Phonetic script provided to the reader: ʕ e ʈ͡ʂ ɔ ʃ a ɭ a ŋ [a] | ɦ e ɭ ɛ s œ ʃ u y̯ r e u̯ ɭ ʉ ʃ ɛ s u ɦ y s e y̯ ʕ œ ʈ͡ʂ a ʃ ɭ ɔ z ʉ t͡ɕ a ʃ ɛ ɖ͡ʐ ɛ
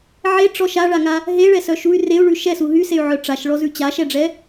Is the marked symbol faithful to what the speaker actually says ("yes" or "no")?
yes